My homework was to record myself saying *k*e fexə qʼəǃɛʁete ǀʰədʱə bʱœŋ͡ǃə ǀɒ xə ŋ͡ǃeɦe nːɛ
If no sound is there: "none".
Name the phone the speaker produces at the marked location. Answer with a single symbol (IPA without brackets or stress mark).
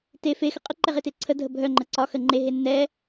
t